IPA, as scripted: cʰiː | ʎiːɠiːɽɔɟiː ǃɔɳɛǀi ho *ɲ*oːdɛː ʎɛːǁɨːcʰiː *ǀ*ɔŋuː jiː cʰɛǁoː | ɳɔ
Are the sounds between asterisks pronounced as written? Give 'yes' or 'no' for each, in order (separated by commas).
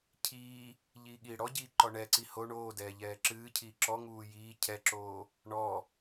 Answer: no, no